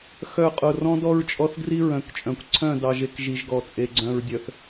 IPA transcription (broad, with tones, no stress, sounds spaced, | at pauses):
x œ˦˨ qʼ ʊ˦˨ r ɔ̃˦ d ɔ˦ ɹ t͡ʃʼ ɔ˦ θ ɡ r i˦ ɹ œ̃˨ k t͡ʃʼ œ̃˨ kʷ ǀʰ œ̃˦˨ d ɑ˨ ʒ e˨ k ʒ i˨ ʒ ɡ ɔ˨ t͡sʼ e˨ ɡ͡ǀ œ̃˨ ɹ dʲ œ˨ θ